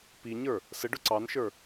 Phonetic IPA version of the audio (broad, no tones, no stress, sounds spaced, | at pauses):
p i ɲ ə˞ | s ə ɖ ʊ ǀ ɑ n ʃ ə˞